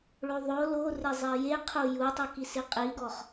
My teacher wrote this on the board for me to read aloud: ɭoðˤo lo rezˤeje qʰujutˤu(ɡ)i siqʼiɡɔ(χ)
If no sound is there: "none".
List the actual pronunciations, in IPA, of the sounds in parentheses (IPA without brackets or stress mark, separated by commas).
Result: k, χ